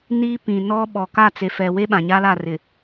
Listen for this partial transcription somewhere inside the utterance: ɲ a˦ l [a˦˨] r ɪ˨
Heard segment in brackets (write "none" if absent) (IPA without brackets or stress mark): a˦˨